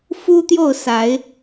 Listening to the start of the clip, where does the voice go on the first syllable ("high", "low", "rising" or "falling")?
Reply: high